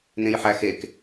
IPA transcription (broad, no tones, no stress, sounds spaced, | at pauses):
n ẽ j ħ æ x e k